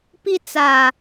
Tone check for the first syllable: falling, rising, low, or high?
high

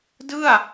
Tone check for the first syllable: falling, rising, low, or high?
falling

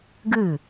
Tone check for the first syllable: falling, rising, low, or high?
falling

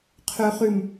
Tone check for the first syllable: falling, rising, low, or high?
low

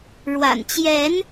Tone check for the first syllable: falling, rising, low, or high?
low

